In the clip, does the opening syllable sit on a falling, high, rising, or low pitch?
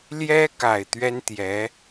high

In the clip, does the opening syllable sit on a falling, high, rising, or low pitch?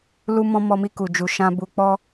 high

